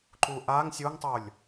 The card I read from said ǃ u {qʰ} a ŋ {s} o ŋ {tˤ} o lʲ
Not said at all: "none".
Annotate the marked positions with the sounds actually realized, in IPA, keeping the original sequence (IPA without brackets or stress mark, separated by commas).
ʔ, sʲ, tˤ